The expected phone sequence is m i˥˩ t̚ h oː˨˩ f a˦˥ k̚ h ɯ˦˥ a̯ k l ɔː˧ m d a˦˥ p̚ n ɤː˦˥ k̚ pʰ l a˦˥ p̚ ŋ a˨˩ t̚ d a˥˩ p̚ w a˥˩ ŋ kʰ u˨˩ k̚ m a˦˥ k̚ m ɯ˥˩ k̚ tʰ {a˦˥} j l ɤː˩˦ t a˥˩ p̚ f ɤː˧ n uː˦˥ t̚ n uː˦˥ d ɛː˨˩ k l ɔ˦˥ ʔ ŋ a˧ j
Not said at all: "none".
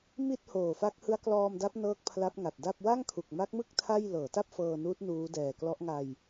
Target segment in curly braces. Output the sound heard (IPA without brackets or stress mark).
a˥˩